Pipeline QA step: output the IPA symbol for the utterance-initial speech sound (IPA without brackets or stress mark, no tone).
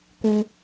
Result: k